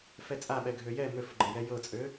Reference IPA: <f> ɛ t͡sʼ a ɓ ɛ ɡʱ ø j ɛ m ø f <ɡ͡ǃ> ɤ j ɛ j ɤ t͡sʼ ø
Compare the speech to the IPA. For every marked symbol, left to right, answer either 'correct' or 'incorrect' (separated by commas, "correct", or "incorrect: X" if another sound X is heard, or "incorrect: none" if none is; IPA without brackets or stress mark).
correct, correct